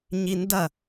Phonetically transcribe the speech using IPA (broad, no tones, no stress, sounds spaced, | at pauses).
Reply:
ɲ i n d ɐ